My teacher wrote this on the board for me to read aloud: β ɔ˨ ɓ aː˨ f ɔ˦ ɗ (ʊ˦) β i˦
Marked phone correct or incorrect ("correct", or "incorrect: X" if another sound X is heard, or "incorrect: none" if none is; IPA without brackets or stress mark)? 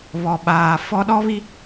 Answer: incorrect: ɔ˦